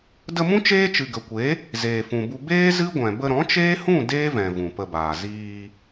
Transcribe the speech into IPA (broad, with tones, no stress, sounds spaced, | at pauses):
d ə˧ m ũ˦ t͡ʃ eː˦ t͡ʃ ɨ˨ ɡ ə˨ kʷ e˨˦ | z eː˨ f ũ˨ b u˧ b eː˦ z ɨ˦ ɡʷ ɛ̃˨ b ə˧ ɾ ɔ̃˨˦ t͡ʃ eː˦ h ũ˦˨ d eː˦ v ɛ̃˨ v ũ˨ p ə˧ b aː˨ z iː˧